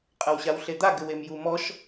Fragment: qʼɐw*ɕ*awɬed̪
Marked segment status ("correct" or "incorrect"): correct